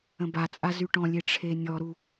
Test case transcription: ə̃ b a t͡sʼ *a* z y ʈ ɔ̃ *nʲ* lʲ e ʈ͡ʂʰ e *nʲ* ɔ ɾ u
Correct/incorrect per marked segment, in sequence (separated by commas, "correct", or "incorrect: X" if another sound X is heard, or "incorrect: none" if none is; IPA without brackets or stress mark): correct, incorrect: none, correct